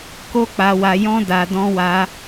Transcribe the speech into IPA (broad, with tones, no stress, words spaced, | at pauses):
ko˦k͡pa˧wa˧jɔ̃˦ da˧dɔ̃˦wa˦